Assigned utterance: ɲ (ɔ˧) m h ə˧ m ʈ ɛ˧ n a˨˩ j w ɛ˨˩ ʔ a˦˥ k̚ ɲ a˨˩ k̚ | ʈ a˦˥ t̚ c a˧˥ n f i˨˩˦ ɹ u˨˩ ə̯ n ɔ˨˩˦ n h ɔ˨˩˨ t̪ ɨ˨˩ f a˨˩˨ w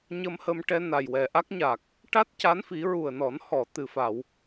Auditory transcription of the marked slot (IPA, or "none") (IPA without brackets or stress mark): ə˧